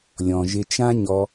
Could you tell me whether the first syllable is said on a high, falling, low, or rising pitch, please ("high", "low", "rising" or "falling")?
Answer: low